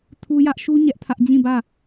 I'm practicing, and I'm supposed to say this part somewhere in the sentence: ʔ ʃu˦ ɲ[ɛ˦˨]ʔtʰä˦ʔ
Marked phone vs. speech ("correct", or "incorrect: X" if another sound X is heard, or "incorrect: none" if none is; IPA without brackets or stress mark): incorrect: ɛ˦